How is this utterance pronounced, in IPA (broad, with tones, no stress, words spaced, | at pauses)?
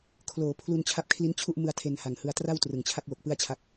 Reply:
kʰloː˩˦pʰlu˧n t͡ɕʰa˦˥p̚kʰli˦˥nt͡ɕʰu˥˩ʔmɯ˧a̯ tʰe˧nha˨˩ŋhɯ˧a̯ tra˥˩wtrɯ˨˩ŋt͡ɕʰa˥˩k̚wo˨˩k̚ pɯ˥˩a̯t͡ɕʰa˦˥k̚